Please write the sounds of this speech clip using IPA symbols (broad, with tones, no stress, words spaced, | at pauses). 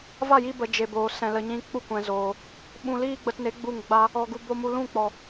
va˦˨ji˧bə˨ d͡ʒe˧boː˨ sɛ̃˧lə˧ɲĩ˦ k͡pu˦kʷɛ̃˨zoː˨ | ɓũ˧liː˦ɡ͡bə˧tne˨˦ ɡ͡bu˦˨ŋɡ͡ba˦ | ɔ˧ɡu˧ bo˦ mu˧lũ˦˨k͡pɔ˨